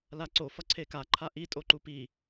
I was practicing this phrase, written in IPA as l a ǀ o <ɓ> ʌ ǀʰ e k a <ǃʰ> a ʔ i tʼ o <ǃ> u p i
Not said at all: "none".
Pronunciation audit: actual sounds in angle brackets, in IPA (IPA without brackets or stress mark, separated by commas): f, ǃʰ, ǃ